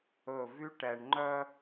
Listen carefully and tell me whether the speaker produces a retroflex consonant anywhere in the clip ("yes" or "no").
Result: yes